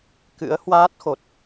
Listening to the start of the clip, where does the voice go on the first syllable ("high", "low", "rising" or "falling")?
rising